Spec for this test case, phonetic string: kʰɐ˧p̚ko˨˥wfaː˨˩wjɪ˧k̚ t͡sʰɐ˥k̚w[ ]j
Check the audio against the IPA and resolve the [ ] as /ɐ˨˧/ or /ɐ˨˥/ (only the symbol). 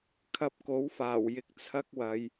ɐ˨˧